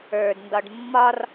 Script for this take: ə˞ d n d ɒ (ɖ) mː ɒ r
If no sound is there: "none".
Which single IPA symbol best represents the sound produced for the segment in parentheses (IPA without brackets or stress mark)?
ɖ